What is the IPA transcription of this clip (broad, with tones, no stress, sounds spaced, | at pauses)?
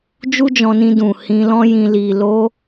d͡ʒ u˦ d͡ʒ ɔ̃˧ n ĩ˧ d ũ˨ h ĩ˧ l ɔ̃˦ j ĩ˧ l i˨ l o˧